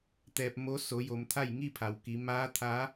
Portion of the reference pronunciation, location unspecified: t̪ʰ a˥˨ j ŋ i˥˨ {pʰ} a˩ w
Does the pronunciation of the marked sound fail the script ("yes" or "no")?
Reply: no